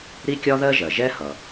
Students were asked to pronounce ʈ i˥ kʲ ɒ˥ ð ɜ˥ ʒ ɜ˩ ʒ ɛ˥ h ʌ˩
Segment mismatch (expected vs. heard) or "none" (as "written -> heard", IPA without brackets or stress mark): ʈ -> ɾ